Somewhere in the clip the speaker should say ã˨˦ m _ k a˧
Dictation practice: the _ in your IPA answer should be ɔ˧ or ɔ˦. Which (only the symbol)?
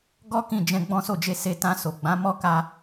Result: ɔ˦